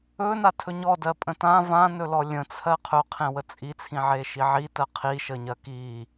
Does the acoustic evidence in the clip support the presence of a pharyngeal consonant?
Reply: yes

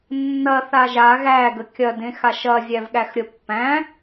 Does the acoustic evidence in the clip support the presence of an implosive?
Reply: yes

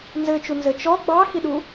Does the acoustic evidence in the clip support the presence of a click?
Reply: no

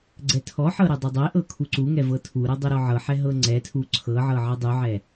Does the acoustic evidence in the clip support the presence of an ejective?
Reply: no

